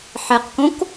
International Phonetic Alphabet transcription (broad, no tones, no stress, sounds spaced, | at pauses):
ħ ɛ q k õ k